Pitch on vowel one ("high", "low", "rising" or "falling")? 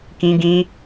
high